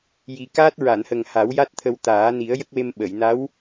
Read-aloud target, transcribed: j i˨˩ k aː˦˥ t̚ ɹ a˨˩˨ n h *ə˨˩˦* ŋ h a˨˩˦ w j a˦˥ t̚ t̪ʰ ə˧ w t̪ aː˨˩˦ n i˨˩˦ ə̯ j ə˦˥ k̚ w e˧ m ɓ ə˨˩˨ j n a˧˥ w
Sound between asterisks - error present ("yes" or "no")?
yes